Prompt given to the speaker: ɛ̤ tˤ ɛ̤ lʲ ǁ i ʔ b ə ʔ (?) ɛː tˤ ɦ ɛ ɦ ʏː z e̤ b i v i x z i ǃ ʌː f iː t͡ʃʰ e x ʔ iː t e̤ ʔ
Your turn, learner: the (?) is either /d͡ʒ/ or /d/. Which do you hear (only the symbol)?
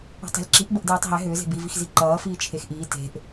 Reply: d